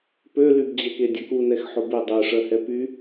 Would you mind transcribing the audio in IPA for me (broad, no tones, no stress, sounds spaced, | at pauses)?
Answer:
p ø l y b d͡ʑ ɛ k e dʲ ɐ k u n ɛ x ħ o b e dˤ ø ʂ œ h ɛ p y